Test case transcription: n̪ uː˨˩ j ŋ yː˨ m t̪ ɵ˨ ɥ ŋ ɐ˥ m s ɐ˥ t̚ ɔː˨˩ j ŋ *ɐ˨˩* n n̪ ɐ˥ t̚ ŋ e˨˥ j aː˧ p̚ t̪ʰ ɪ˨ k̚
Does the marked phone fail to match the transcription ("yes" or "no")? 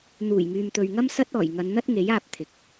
yes